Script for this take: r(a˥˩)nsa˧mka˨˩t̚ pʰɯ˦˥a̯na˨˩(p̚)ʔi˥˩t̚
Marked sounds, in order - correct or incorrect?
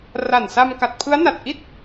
incorrect, incorrect

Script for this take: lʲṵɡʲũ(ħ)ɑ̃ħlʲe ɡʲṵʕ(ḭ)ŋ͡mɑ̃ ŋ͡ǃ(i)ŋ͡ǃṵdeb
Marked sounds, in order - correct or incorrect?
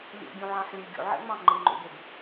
incorrect, incorrect, correct

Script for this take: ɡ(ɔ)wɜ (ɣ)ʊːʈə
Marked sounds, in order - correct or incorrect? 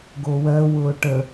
incorrect, incorrect

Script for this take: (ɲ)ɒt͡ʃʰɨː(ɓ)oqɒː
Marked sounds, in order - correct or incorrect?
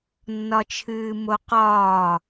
incorrect, incorrect

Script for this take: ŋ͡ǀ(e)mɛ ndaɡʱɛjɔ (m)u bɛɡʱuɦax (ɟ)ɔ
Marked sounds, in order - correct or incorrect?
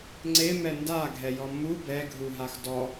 correct, correct, incorrect

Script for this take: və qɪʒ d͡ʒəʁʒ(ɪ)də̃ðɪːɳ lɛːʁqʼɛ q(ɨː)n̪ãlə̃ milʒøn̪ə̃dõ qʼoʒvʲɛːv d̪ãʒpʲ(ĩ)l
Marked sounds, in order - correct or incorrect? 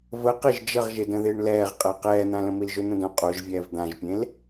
correct, incorrect, incorrect

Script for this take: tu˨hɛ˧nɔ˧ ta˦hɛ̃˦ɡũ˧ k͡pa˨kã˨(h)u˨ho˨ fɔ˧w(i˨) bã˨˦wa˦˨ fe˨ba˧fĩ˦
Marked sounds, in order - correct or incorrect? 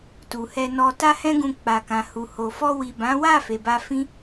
correct, correct

